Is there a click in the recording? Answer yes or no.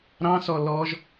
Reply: no